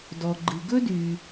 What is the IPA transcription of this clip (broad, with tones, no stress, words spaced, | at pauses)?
dɔ˨ɡ͡ǃɨ˨ ɡɵ˥dy˨